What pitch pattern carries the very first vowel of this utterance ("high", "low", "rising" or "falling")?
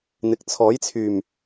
low